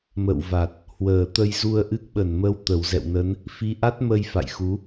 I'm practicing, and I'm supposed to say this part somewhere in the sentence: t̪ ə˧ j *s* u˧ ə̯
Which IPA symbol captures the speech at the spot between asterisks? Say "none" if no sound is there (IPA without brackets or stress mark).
z